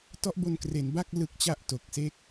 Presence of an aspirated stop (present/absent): absent